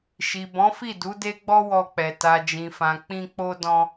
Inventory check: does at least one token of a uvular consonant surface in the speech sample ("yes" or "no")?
no